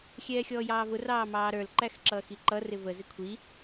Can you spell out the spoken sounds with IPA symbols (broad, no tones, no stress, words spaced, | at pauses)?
xʲɛːxʲɔːjɑːvʊ rɑːmɑːɾə˞l ǃæxǁʌːxiǃʌ rɪvə zɪkʷʰi